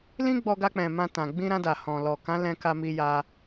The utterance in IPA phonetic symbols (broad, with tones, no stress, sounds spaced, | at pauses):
l ĩ˦ ɡ͡b ɔ˧ ɡ a˧ k͡p ɛ̃˨ m ã˧ t ã˨ ɡ͡b ĩ˧ ɾ ã˧ d a˨ h ɔ̃˨ l ɔ˨ k ã˨˦ l ɛ̃˧ k a˧ m i˧ j a˧